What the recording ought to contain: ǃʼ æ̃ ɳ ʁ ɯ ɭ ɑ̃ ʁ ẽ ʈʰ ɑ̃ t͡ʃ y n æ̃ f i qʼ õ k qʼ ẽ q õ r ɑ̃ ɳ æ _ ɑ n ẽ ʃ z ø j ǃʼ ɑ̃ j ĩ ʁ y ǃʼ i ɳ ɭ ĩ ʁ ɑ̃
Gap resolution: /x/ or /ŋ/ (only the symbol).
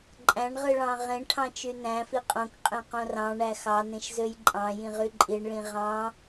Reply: x